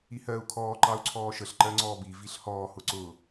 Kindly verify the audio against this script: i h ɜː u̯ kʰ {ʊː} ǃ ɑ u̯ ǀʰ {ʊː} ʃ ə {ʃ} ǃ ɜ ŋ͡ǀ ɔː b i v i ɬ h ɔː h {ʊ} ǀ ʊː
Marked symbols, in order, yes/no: no, no, no, yes

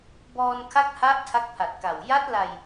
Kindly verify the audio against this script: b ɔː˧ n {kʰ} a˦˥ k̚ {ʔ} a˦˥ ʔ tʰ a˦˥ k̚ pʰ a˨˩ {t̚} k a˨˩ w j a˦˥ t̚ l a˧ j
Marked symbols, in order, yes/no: yes, no, yes

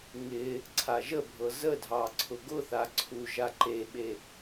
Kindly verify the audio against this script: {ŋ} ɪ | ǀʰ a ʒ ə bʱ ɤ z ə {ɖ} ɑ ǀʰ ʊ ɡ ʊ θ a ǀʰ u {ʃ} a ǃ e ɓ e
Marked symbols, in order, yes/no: yes, no, no

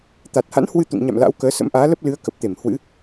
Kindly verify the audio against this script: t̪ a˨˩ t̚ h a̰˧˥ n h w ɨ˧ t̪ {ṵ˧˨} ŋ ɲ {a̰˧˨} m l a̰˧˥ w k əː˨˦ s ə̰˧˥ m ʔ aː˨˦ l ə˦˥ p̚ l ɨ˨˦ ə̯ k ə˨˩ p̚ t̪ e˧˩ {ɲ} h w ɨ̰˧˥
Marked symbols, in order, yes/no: yes, yes, no

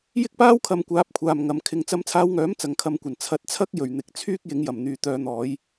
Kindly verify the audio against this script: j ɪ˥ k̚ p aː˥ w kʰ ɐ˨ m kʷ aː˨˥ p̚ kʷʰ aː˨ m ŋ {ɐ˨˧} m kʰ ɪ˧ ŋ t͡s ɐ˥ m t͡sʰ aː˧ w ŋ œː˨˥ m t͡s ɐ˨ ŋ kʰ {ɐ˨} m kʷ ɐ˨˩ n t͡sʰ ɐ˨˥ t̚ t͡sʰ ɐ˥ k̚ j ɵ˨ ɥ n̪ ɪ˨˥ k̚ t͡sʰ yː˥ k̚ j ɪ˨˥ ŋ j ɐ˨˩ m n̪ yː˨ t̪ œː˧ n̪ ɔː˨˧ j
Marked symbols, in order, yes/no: yes, no

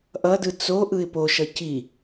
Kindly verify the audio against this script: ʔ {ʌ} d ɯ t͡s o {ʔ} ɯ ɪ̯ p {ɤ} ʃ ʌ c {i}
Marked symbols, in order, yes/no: yes, yes, no, yes

